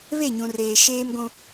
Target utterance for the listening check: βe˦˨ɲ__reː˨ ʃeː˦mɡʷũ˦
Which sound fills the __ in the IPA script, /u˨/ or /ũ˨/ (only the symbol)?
ũ˨